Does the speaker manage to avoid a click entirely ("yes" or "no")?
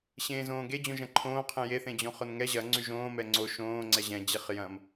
no